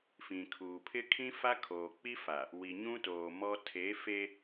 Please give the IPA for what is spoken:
f ĩ˨ kʰ uː˨ pʰ ɪ˦ kʰ ĩ˦ f a˦ kʰ oː˨ k͡p i˦ f a˨ | w i˨ ɲ ũ˦ t oː˨ m ɔ˦ tʰ e˨˦ f e˦

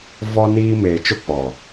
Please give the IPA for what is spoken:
v ɔ˦ n iː˦ m eː˨ t͡ʃ ʊ˦ k͡p ɔ˨

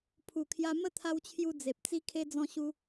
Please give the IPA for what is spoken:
pʰ u˨˩ kʰ j a˧ m ə˥˧ t̪ʰ a˧ w t͡ɕʰ j u˧ d͡z e˨ p̚ t͡s i˦ kʰ e˦ d͡z ɔ̃˧ ɕ u˧

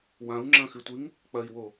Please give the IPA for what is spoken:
w ã u̯ ŋ͡ǁ ɐ̃ x ɨ tʷ ɨ ŋ | k͡p ɐ i̯ w o

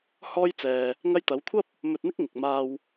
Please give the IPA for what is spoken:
h ɔː˥ j t͡s ɛː˧ | ŋ ɐ˧ j t̪ ɐ˨˧ w kʷʰ ɐ˥ p̚ | m ɵ˧ t̚ n̪ ɪ˥ k̚ ŋ ɪ˨ k̚ m aː˧ w

